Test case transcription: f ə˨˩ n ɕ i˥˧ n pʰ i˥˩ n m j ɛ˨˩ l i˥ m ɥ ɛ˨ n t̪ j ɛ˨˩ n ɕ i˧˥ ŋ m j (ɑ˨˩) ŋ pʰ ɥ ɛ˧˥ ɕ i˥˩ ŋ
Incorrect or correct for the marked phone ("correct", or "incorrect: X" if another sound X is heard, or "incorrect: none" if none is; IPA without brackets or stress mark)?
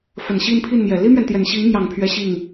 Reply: correct